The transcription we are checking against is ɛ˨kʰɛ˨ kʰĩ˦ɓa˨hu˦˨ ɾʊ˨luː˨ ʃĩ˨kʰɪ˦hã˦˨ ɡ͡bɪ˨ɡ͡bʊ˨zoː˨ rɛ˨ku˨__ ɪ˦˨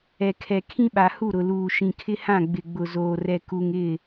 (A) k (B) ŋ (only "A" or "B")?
B